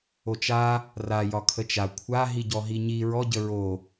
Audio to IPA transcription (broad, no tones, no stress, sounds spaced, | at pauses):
o t͡ʃ a | r a j ɒ kʰ ə t͡ʃ a kʷʰ a ɦ i ɟ ɔ ɦ i ɲ i ɹ ɔ ɟ ə ɹ o